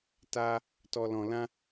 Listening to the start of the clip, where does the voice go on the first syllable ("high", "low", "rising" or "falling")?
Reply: high